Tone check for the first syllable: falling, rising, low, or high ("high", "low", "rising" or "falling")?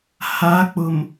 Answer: rising